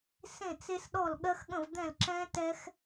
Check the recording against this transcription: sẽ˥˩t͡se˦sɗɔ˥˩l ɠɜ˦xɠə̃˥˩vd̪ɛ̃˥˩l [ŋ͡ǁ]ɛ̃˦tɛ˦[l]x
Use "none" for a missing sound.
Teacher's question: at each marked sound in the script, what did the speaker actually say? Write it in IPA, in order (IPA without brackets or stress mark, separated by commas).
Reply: ǁ, none